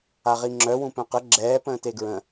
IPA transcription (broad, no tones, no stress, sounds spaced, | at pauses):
a ʁ i ŋ͡ǁ œ w ũ p œ̃ q ə ɡ͡ǁ ɛː p ə̃ː t e ɡ ɹ ə̃